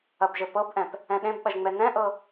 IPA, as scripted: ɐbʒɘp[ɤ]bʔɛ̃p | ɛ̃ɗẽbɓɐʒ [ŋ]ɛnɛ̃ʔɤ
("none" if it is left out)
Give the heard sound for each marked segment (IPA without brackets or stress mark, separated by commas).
ɤ, ŋ͡m